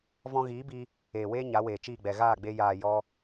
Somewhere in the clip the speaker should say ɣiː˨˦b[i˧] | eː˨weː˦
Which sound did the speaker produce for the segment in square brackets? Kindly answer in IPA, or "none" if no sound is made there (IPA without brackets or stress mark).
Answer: i˧